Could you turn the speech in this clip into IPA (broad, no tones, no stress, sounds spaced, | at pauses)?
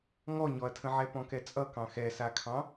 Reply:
ŋ ɔ ɲ ɔ ɐ̯ tʰ ə̃ ʕ ɛ p ɔ̃ k ɛ t͡sʼ ʌ k ɑ̃ x ɛ s a kʰ ɑ̃